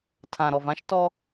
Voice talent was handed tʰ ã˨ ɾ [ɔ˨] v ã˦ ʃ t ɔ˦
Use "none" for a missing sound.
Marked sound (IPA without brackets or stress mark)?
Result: ɔ˨